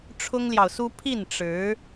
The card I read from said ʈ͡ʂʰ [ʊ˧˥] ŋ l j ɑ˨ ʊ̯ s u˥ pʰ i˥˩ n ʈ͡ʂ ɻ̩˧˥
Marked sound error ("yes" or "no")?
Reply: yes